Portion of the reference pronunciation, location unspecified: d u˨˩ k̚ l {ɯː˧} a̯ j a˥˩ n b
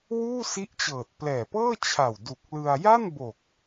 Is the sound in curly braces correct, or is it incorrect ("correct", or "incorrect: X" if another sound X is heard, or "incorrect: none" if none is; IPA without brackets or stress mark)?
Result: incorrect: ɯ˧